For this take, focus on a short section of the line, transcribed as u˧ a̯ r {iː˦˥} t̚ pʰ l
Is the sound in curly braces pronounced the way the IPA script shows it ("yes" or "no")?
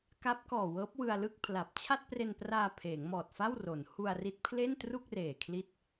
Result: no